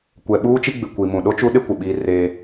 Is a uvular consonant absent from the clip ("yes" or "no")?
yes